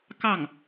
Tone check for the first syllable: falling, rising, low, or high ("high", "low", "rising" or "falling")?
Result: falling